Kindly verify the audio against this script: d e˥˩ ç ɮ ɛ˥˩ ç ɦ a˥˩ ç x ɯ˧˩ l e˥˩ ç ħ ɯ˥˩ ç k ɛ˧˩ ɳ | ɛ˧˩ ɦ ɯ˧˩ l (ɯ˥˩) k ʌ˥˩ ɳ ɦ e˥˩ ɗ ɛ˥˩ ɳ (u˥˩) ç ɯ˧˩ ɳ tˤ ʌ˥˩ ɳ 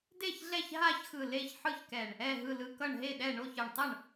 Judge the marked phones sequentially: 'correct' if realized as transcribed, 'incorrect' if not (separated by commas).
incorrect, incorrect